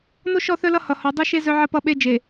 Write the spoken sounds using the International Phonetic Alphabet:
n o˦ ʃ ɔ˦˨ θ œ˦ l ʌ˦ h ʌ˨ h ɔ˨ dˤ o˦ ʃ e˦ z œ˦ ʕ ə˦ p ʌ˦ ɓ e˦ d͡ʒ e˨

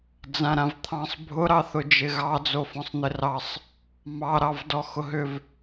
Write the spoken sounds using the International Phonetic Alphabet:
d͡z ã ɾ ã v t̪ʰ ɑ̃ sˤ bʱ ʊ ɾ ɑ θ ʊ d͡ʒ ɪ ɣ ɑ d͡z o f ɔ̃ sˤ n̪ ɪ r ɑ sˤ | m ɑ ɾ ɑ v d ɔ x ʊ ɦ ʏ v

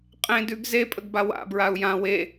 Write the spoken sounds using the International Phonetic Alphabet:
qʼ ẽ d ʉ ɡ z e pʼ ə ɡ b a w a̰ b ɹ a u̯ j ã w e

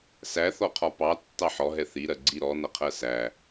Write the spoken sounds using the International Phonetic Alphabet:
s æ θ ɔ qʰ ɒ p ɑ tː ɑ ħ ɔ ɦ ɛ θ i ɾ ɜ ɡ͡ǀ i ɾ ɔ n ʌ qʰ ɜ s æ

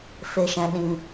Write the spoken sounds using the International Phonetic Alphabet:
f e˨ ʃ ɛ̃˨ ɗ ĩ˨

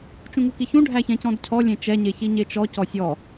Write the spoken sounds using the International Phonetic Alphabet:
t͡ʃ ũ ŋ u k i ç ũ ɖʱ æ ç ɛ̃ c ɔ̃ d cʰ ɔ lʲ ẽ t͡ʃ ɛ ɲ e ç i ɲ e t͡ʃ ɔ c ɔ sʲ ɔ

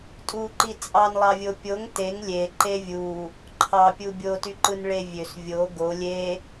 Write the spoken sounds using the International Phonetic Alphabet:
tʼ u ǃ i t͡sʼ ɑ n lˠ ɑ vʲ o pʲ o ŋ t e ŋ lʲ e ǃ e vʲ u | ǃʰ ɑ pʲ u bʲ o t y ǃ ɯ n ɭ e vʲ ø s vʲ o ɡ o lʲ e

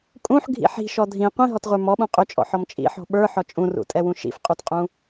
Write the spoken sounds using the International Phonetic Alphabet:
kʼ ũ ħ ɡʱ ḭ ħ i̤ ʃ ɔ dʱ ĩ qʷ ĩ ɦ ɔ t ʁʷ ə˞ m ɔ ɓ ũ qʼ ʏ t͡ʃʼ ɔ̰ ħ ɔ m t͡ʃʼ ḭ ħ ɔ̤ ɓ ə˞ ħ ɔ t͡ʃʼ ũ r ṵ tʼ ɛ w ũ ʃ ḭ f qʼ u t qʼ ũ

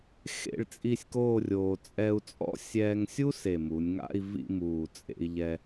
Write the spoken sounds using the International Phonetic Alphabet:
x ḛ˥˧ ɭ t͡sʼ i˥˧ sʲ k oː˥˧ rʲ oː˧ t͡sʼ ɛ˧ u̯ t͡sʼ ɔ̰˥ sʲ ɛː˧ ŋ sʲ u˥ s e˨˩ m u˩˧ nʲ ŋ a̰˥˧ i̯ v ḭ˥˧ m uː˨˩ t͡sʼ ḛ˧ i̯ ʎ ɛ˧

